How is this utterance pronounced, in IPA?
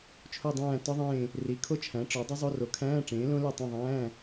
t͡ʃʰ o˦˨ dˤ æ̃ː˦˨ t ɒ˦˥ ðˤ ẽː˦˨ | r i˩˥ kʰ o˦˥ t͡ʃʰ æ̃˩˥ ʈ͡ʂ ɒ˩˥ dˤ i˦˥ zˤ o˧˥˧ r o˩˥ kʰ æ̃ː˧˥˧ ʈ͡ʂ ẽː˩˥ l õ˦˥ l e˦˨ tˤ ẽ˦˨ ðˤ æ̃ː˧˥˧

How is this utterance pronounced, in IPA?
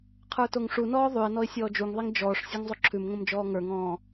qʰ ə˞ t o ŋ ʂ u n ɔː ðˤ ʉ ɪ̯ n ɔ ɪ̯ sʲ ɔː d͡ʒ u ŋ ðˤ i ŋ d͡ʒ ɔː ʂ sʲ ə˞ ŋ zˤ o ǁʰ ʉ m ŋ õ m d͡ʒ ɔː ŋ ə˞ ŋ ɔ̃ː

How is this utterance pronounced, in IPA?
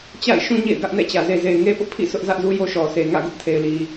t͡ɕ a̰˦˨ ɪ̯ ʃ ũ˦ ɲ ḛ˦˨ ɪ̯ ɡ ä˦ ʔ n ɛ̰˦˨ t͡ɕ ä˨ z e˨ z e˨ ɪ̯ ŋ e˦ p ʊ˦ ʔ pʰ ḭ˦˨ s ʊ˦ ʔ z ä˦ ʔ z u˦ j o˦ ʃ ɔ˨ s e˨ ŋ ä̰˦˨ ɡ ʊ˦ ʔ tʰ e˨ ɪ̯ l i˨

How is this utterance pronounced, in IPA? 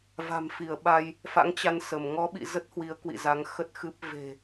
v a̤˨˩ m f i˧˩ ə̯ ɓ a˧ j | f a̰˧˥ ŋ t͡ɕ a˧ n s ə˧˩ m ŋ ɔ˨˦ ɓ ḭ˧˨ z ə˦˥ t̚ h w i˨˦ ə̯ k w ḭ˧˨ z a˨˦ ŋ x ə˦˥ t̚ x ɨ˦˥ p̚ v e̤˨˩

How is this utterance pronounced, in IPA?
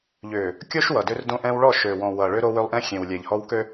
ʎ ʏː˨ | kʲ o˦ ʃ w ʌ˨ d ʏ˦ r d õ˦ ʔ ɛ̃˦ w ɭ ɔ˦˨ ʃ ø˨ w ɔ̃˨ w ʌ˨ ɭ ʏ˦ ɾ o˦ w ø˦ lˠ ʔ ɛ̃˦ xʲ ẽ˨ w lʲ ɛ˨ ʎ h ɔ˦ w k ø˦

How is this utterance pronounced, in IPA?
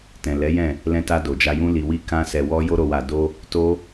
t ɛ̃˨ l ɛ˨˦ j ɛ̃˦˨ | l ɛ̃˧ t a˧ d o˨ d͡ʒ a˧ j ũ˦ l i˧ w i˦ k ã˦ s ɛ˧ w ɔ˦ j o˦ ɾ o˧ w a˧ d o˦ | t o˦

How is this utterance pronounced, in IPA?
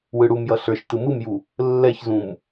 w ɯ ɽ u m j ʌ ɬ ə˞ ʃ t ɯ m ɯ m j u | lː ɛ ç z ũ m

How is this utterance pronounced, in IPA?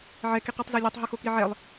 ʕ ɛ k i q i tˤ z ɛ lʲ ɛ tˤ ɦ u x o k i ʕ ɛ lˠ

